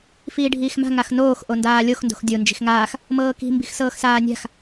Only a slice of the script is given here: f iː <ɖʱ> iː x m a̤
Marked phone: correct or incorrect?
correct